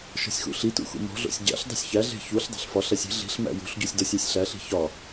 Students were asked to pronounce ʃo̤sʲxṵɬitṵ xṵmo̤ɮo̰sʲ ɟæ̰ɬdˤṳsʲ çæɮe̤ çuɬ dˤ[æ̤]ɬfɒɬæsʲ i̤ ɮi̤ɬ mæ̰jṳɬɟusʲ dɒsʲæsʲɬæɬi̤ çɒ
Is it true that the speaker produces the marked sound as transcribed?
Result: yes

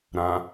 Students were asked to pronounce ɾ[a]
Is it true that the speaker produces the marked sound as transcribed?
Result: no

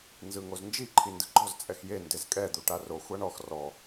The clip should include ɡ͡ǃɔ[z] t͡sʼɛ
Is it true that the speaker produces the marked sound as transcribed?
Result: yes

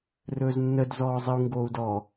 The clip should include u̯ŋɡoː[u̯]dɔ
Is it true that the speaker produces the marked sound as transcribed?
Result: yes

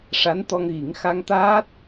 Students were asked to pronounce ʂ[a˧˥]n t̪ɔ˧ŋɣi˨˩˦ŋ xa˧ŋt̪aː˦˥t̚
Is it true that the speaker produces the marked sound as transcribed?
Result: yes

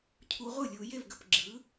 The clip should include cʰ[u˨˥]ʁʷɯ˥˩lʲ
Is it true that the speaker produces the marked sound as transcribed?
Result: yes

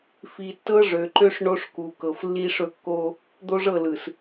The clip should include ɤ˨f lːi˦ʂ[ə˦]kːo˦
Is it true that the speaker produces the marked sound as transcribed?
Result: no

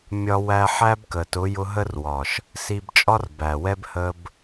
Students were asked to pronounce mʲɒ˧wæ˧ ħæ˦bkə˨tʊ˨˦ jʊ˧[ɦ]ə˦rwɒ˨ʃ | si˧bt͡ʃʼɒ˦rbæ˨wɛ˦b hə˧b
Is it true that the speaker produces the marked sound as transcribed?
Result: yes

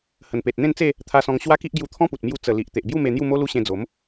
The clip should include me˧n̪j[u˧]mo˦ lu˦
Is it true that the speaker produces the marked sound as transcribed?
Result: no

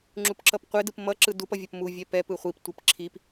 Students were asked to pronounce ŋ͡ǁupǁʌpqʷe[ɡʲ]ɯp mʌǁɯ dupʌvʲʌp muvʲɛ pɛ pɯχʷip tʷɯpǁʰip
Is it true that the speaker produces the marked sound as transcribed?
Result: no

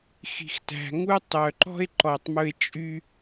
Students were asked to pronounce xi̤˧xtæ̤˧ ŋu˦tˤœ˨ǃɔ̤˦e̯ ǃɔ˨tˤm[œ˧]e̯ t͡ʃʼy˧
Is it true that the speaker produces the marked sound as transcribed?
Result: no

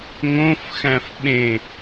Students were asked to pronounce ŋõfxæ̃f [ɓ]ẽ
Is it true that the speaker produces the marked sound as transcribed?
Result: yes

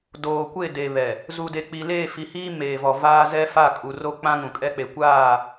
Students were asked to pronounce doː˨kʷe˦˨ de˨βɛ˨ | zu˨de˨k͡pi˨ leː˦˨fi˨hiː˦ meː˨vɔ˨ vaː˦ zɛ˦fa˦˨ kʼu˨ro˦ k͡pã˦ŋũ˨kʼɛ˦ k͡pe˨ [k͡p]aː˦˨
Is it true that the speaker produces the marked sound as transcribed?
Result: no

